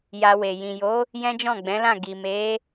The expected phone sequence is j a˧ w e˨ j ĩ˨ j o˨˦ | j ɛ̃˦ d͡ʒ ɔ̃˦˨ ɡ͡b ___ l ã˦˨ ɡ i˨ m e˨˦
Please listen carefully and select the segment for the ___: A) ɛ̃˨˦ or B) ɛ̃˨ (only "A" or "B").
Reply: A